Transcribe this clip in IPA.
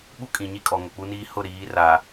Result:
ɓu˦kʼĩ˨ɲi˦kʼɔ˨ ŋo˨k͡pu˦niː˦ hʊ˦˨ɾiː˨˦ ra˨

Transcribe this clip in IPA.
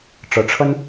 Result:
ʈ͡ʂɤ˧˥ʈ͡ʂʰə˥n

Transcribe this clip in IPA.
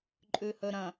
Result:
ǃʼʉhɵɾɐ̃

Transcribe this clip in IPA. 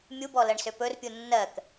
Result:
mʲubɔ lɜɳsøpɵrpʲu nːɜk

